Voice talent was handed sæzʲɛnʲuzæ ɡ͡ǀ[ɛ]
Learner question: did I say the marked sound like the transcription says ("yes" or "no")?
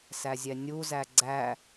no